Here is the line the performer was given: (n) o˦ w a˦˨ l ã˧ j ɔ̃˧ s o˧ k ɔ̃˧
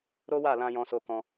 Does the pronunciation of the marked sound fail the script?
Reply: yes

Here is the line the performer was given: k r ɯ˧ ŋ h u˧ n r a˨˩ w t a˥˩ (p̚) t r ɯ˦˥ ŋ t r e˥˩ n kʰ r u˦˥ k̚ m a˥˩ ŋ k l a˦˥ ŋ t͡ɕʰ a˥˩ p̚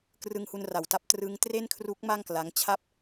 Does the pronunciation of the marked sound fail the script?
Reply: no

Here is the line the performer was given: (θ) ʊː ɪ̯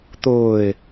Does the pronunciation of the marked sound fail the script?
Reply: yes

